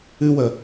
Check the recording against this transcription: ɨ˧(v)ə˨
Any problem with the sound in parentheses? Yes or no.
yes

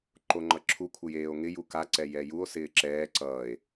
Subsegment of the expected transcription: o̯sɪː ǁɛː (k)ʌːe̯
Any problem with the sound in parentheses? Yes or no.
yes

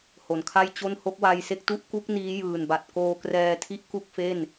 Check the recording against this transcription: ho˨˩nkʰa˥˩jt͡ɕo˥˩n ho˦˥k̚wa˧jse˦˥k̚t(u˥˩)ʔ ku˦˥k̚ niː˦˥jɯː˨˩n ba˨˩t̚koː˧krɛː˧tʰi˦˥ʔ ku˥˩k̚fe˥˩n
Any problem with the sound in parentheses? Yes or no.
no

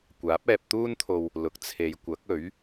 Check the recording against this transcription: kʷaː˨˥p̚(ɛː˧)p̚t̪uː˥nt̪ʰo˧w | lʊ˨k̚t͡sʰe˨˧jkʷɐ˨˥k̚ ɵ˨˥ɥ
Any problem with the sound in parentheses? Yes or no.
no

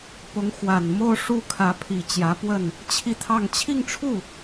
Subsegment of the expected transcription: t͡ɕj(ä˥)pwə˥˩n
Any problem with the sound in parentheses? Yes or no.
yes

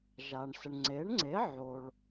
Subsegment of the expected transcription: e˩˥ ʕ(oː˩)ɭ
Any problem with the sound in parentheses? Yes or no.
yes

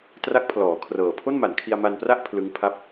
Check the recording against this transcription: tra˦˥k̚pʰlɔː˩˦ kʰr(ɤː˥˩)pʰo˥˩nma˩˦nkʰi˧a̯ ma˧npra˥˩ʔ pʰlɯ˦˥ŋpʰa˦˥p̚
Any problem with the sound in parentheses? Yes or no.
yes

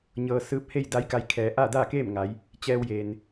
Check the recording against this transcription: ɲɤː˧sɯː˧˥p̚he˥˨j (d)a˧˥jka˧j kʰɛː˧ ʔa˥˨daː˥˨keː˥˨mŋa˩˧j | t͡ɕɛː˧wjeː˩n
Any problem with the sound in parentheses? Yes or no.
no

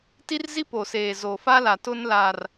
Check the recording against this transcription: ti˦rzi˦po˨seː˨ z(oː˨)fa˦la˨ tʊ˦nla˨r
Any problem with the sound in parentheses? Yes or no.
yes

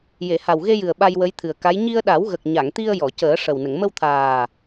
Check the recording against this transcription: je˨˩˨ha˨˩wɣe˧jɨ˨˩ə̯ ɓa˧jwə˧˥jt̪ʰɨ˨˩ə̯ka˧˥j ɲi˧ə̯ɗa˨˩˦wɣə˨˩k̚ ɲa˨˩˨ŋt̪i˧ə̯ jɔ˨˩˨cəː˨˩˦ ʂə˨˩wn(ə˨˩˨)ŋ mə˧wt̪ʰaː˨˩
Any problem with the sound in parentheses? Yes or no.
no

